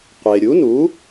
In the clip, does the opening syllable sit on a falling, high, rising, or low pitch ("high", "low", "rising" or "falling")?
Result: low